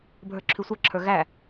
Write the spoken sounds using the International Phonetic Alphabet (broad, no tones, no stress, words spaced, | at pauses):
bʱə˞ǁʰʉsʷə˞ǁʰə˞ ɣæ